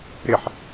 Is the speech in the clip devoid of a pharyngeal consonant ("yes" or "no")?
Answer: no